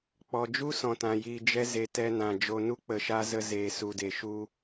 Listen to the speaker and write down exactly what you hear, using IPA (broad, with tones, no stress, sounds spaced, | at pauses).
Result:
k͡p ɔ˨ d͡ʒ u˦ s ɔ̃˨ t ã˨ j iː˨ d͡ʒ ɛ˧ z e˨ t ɛ˧ n ã˨ d͡ʒ o˨ n u˦ k͡p ə˨ ʃ a˧ z ə˧ z eː˨ s u˨ d e˨ ʃ u˧